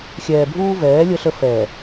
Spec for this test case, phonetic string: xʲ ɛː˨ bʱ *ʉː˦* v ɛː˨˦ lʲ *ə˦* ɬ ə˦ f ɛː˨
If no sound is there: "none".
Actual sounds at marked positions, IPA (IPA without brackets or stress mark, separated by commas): uː˦, ə˦